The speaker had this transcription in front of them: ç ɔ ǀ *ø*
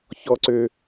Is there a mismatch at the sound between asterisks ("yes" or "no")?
no